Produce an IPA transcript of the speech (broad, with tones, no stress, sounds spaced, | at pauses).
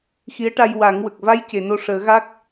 x i˧˥ ə̯ ʈ a˧ j w a˨˩˦ ŋ w ə˨˩ k̚ v a˧˥ j c e˨˩˨ n o˧ ʂ əː˨˩˦ ɣ a˦˥ k̚